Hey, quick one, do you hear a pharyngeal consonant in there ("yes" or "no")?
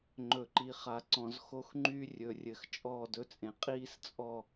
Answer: no